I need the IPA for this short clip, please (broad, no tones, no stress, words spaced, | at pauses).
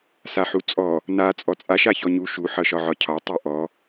saħut͡sʼɔ | na t͡sʼɔt͡sʼa ʃaçɔɲu ʃu ħʌʃɒʕɒcʰɒ tˤuʔɔ